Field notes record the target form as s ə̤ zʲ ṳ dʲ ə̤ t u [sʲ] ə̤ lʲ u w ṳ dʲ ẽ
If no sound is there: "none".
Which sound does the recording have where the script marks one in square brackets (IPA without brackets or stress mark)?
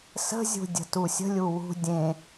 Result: sʲ